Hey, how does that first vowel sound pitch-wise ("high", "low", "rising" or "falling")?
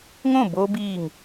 falling